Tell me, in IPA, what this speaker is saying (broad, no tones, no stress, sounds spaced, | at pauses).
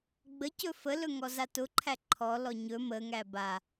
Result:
ɡ͡b ə c ɵ f ə l ɵ ŋ ɔ z a t ʊ ǃʰ æ ǃʰ ɔ l ɔ ɲ ɵ m ə ŋ æ b a